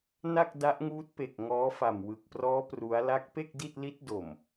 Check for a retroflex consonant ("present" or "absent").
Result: absent